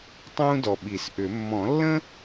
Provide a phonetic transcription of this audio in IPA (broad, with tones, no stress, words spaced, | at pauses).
tˤũː˥dɔ˨ɓi˨˩˦sʔʏ˨˩˦ mːɔ̃˨˩˦lːə̃˥